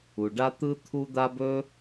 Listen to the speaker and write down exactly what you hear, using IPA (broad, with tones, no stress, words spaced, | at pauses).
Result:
u˩ɖa˥ t̪ɯ˥t̪ʰu˥d̪a˥b ɵ˥